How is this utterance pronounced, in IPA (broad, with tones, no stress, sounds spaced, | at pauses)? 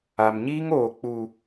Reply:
a˨ m ɲ iː˦ ŋ oː˨ k͡p u˨